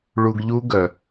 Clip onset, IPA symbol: ɭ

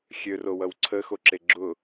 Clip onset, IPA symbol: xʲ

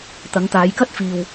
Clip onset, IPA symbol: t̪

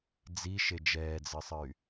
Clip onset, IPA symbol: d͡z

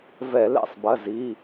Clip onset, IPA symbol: v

